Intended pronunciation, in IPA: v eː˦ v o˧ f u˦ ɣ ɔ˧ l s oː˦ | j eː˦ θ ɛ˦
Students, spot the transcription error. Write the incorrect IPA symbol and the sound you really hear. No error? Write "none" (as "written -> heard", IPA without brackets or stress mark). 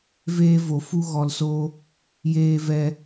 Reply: θ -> v